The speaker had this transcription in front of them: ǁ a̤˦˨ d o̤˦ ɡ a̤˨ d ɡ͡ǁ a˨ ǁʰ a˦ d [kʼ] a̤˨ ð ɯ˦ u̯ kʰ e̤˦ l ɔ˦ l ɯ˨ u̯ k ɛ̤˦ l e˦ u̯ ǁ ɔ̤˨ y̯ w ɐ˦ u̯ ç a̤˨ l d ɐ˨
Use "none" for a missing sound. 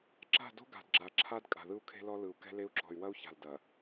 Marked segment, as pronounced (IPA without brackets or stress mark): kʼ